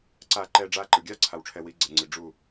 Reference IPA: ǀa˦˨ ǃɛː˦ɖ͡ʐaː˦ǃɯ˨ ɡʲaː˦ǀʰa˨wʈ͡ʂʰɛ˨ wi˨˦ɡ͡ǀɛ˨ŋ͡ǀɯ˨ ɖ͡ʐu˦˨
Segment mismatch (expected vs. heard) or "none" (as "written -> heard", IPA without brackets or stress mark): none